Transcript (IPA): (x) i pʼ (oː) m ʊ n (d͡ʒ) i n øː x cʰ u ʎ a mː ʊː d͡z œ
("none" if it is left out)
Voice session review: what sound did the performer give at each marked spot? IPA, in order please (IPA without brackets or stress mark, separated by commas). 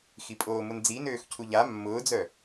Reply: x, oː, d͡z